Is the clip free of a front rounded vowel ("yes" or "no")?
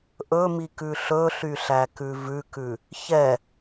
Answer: no